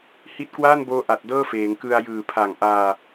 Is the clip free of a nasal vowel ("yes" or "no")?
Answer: yes